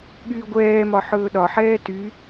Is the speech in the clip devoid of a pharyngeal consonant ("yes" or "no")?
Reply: no